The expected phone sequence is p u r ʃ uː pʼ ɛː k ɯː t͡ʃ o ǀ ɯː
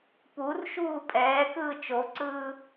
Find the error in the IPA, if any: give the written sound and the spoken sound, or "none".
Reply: none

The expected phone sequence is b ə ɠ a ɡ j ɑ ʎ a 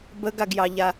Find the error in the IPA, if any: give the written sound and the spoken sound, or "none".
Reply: ɠ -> ɡ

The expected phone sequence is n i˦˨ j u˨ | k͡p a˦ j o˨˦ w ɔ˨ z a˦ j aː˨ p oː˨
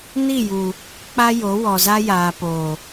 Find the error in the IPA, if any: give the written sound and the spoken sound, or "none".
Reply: none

